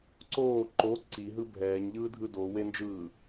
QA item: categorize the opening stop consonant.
click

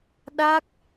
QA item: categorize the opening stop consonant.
implosive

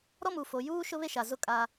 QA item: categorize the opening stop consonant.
ejective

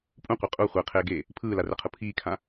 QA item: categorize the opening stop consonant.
ejective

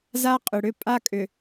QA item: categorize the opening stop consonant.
ejective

